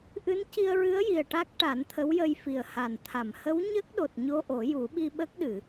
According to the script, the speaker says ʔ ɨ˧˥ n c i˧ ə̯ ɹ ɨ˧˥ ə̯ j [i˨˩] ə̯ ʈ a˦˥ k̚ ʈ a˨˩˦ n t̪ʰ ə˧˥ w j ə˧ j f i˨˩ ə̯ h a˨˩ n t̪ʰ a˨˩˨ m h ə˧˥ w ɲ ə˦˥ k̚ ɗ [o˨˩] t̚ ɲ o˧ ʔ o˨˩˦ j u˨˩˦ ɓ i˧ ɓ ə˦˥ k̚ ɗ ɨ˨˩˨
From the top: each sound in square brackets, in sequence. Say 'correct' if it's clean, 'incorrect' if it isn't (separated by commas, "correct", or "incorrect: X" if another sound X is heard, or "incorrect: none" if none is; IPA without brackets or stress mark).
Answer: correct, correct